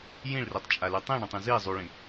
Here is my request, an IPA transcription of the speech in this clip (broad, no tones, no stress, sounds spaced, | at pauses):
j ĩ ɭ r i tˤ t͡ʃʼ a l y tˤ ĩ ɳ ɛ̃ tˤ ĩ z i zˤ u ɭ ĩ